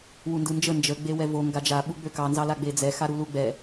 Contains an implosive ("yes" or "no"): yes